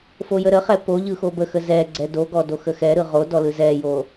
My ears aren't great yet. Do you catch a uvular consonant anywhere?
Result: yes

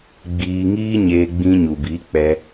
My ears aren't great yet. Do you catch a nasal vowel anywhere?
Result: yes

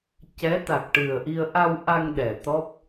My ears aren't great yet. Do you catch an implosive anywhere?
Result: yes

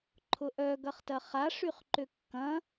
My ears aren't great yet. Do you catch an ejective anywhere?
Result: no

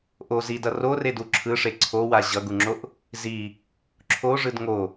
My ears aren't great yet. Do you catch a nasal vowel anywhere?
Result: no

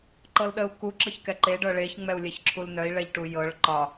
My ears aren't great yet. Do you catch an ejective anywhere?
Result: no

